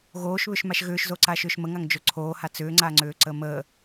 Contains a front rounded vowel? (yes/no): yes